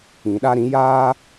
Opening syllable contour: low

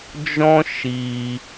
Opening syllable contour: high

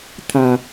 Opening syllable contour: low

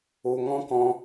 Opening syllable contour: low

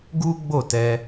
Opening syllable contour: high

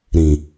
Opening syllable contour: low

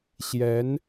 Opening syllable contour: rising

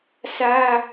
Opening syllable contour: high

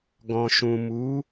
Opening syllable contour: low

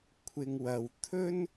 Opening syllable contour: low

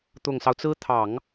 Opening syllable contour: low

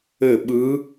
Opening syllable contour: falling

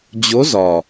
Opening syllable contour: rising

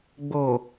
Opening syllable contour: low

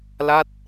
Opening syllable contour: falling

